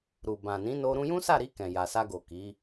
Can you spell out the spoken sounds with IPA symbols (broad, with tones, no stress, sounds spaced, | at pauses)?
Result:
ɾ u˨ b ã˨ n ĩ˨˦ n o˧ ɾ ũ˧ j ũ˦ s a˦˨ ɾ i˧ k ɛ̃˨ j a˨ s a˧ ɡ o˨ k i˨˦